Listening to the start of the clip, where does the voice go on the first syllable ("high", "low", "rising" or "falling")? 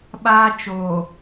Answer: high